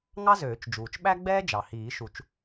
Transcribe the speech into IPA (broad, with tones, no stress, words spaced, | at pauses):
ŋɑ˥zøː˨˩˦t͡ʃd͡ʒuː˩t͡ʃ ɓæ˥ɡ͡bɛː˥ d͡ʒɑ˩hiː˨˩˦ʃu˨˩˦t͡ʃ